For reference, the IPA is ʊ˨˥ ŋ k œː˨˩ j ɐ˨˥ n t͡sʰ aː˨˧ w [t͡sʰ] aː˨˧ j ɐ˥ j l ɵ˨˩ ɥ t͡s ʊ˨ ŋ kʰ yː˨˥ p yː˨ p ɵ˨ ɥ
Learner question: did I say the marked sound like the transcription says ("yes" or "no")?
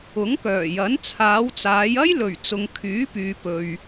no